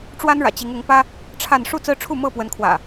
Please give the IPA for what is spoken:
ʈ͡ʂwa˦nɻä̰˨˩ t͡ɕi˨˦ŋʊ˨˦ŋpä˦ | ʈ͡ʂʰa˥˨n ʂu˥˨t͡sɹ̩˦ʈ͡ʂʰu˥˨ mɤ˥˨pwə˨˦nkʰwä̰˨˩

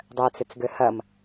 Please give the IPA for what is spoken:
dˤœt͡sʏt͡sɡø hɐm

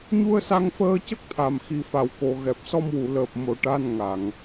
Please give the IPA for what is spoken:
ɲu˧ə̯sa˧ŋ fəː˧cə˦˥k̚t̪ʰa˨˩m xi˨˩fa˨˩˨wko˨˩˨ ɣɛ˨˩p̚ sɔ˧mwu˨˩˨ləː˨˩p̚ mo˨˩˨ ʈa˧n ŋa˨˩˨ŋ

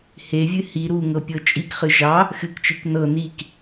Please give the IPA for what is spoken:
hevʲɨ hi ɾuŋɤ pʲɤt͡ʃʼikχɨ ʒɑ | xɨkt͡ʃik nɤ nik

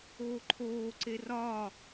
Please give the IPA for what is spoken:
oːǃʰoːǀe rɒ

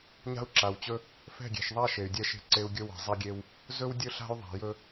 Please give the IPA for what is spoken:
ɲa̤˦u̯ǁa˨wt͡ɕɵ˦ | fɛ̤˦˨ɡʲe̤˨ʃðˤa˦ ʃe˨y̯dʲɛ˦ʃe̤˦ǀe˦u̯ ɡʲɵ˦wɛ̤˨zˤa˦ɡʲe˦w | zɵ˦wdʲɵ˦ɬa̤˦y̯ðˤa̤˨ jɵ˦

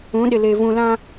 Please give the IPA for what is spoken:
ũ˨˦ɗɪ˨leː˨ vũ˨lã˦

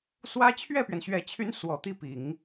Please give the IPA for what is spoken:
swä˥ t͡ɕʰɥɛ˥˩pɥɛ˩nɕɥɛ˨˩t͡ɕʰy˧˥n swɔ˨˩t̪i˥˩pi˨˩˦ŋ

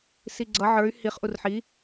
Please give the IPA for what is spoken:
siɡ͡ǀʌ ʕə˞y̯ hiχ ʔurħi

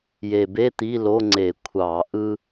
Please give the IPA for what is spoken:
je˨˩be˧˥˧ t̪i˧˥˧lo˧˥˧ŋ͡ǀe˧˩˧ kʷʰɑ˧˩˧ ʔɯ˥

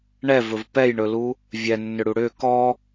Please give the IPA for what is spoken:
ɳɛvɵv pɛjɳɵlu | vʲɛnːʏɽu ɽʏ kɔ

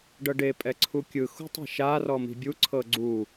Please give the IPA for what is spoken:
ɖɤɖe pʼɛǀʰukʲɯ xṳtˤe̤ʃa rɔmi̤bʲu ǀʰɤɡ͡ǀu

